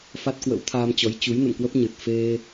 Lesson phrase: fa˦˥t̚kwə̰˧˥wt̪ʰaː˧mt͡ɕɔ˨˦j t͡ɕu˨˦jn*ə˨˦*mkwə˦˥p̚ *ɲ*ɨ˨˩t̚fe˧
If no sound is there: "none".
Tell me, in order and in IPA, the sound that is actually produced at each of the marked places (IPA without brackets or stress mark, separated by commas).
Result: ə̰˧˨, ɲ